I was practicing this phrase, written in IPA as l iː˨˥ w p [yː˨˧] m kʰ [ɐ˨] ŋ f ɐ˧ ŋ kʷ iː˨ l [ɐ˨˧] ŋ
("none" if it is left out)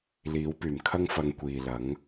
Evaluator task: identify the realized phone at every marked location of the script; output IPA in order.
yː˨˩, ɐ˥, ɐ˨˥

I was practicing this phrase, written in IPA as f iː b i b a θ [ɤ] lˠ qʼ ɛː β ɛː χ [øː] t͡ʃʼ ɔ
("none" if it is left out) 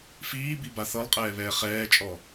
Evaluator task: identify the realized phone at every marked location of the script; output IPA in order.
ɤ, ɛː

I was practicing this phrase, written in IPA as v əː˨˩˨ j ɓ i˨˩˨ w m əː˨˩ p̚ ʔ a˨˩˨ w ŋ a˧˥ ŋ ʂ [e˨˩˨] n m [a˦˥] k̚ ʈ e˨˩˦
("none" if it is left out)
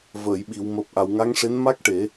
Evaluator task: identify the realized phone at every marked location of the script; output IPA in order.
e˧˥, a˦˥

